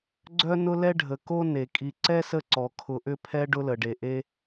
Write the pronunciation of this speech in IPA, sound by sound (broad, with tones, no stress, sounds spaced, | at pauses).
ɡ͡ǀ œ˥ n ʊ˥ l ɛ˥ ɖʱ ə˩ k o˥ n e˩ kʼ i˨ ǀ ɛ˥ s ə˦ ǀ ɔ˩ kʰ ʊ˨ ʔ ʏ˦ pʰ ɛ˦ ɖ ʊ˦ l ə˩ ɖ e˩ ʔ e˦